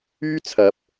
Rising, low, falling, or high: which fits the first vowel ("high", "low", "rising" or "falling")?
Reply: high